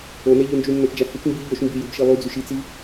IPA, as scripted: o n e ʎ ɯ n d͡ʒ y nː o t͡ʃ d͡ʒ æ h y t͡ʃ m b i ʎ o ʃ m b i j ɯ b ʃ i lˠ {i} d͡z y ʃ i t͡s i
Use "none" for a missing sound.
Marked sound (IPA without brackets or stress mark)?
y